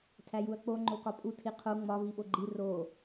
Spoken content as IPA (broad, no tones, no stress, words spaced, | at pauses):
tʰæjuɐ̯k͡po ŋ͡ǃokɒpʼu tʰiqʰo ŋ͡mɒ viɓoɡ͡ǃi ro